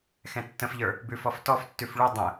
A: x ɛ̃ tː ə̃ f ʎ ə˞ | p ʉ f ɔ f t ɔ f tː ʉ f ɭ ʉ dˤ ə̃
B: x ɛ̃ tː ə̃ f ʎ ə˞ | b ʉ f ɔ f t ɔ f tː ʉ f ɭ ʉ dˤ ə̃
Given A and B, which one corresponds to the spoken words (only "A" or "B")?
B